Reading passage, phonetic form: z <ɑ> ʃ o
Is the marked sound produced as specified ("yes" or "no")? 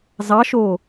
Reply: yes